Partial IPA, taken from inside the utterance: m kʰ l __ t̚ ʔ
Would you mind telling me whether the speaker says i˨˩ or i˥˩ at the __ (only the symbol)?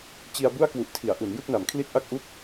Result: i˥˩